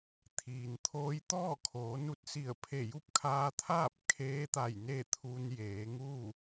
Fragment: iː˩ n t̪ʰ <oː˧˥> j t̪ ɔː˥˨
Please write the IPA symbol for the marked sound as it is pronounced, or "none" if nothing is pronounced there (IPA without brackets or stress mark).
oː˧˥